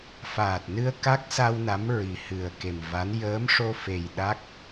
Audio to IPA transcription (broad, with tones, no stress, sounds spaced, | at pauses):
f aː˨˩ t̚ n ɨ˧ ə̯ k a˦˥ k̚ s a˧ w n a˧˥ m ɹ i˨˩ h ɨ˨˩ ə̯ k e˨˩ m v a˧˥ n j əː˧˥ m ʂ o˧ f e˨˩ j ɗ a˦˥ k̚